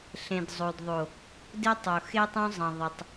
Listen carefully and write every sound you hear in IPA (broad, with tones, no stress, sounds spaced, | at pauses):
ɬ ẽ˨ d zˤ o˨ d ðˤ o˨ | d ɪ˦ tˤ o˨ x e˦ tˤ õ˦ zˤ ɐ̃˨ ðˤ ɐ˨ tˤ